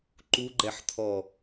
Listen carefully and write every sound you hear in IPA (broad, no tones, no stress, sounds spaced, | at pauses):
ǃ u ɡ͡ǃ ɛ ħ t̪ʰ ɔ